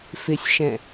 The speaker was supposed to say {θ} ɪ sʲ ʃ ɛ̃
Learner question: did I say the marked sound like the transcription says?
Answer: no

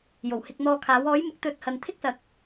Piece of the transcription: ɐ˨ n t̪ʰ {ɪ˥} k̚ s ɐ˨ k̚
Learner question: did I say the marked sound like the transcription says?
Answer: yes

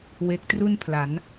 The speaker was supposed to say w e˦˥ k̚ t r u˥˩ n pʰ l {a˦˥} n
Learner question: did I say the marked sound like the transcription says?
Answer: no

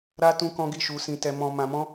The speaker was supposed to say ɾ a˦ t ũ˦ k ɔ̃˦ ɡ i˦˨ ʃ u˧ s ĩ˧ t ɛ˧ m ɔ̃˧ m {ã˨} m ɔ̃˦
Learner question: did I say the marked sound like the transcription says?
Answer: no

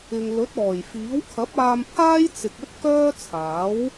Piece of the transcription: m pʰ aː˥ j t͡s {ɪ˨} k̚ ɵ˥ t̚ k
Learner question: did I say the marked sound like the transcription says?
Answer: yes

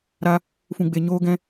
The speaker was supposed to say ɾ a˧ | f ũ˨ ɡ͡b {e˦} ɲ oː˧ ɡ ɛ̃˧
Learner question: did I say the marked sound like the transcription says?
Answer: no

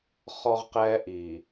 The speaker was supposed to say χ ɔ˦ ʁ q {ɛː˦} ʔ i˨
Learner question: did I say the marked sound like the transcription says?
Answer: yes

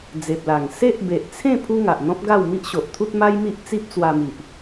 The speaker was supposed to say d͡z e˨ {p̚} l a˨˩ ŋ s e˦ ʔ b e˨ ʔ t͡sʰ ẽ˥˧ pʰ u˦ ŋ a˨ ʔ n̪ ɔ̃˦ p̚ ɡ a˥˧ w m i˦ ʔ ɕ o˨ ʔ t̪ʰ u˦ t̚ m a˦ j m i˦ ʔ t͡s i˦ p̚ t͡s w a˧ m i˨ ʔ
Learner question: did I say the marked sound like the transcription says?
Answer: yes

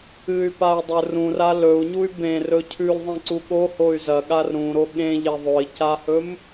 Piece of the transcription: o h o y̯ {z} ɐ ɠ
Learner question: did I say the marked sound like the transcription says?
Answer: yes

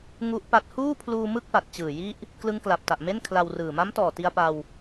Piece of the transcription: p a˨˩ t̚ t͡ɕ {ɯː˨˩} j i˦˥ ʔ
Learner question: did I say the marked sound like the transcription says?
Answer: yes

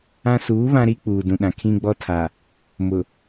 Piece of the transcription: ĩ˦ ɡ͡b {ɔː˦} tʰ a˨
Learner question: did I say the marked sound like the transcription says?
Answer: no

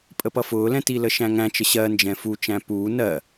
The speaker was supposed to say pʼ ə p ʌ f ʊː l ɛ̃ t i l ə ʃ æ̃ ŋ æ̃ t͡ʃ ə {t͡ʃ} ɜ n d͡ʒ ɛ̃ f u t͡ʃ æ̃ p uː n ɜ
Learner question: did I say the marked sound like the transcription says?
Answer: no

